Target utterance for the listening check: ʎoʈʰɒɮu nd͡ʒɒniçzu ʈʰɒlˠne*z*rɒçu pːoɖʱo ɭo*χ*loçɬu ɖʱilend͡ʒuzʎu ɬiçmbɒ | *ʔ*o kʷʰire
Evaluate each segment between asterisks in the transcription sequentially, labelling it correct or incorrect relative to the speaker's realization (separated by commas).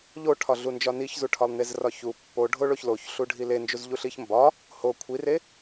correct, incorrect, incorrect